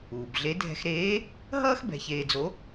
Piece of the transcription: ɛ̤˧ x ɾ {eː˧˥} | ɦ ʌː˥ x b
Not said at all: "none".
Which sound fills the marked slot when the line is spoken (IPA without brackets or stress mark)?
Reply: eː˧˥